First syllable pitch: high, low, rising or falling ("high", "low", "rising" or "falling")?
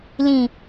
low